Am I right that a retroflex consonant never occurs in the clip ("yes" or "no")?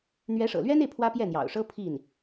no